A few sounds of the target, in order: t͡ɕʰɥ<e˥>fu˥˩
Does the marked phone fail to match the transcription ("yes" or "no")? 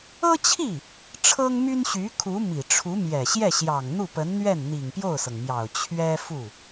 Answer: yes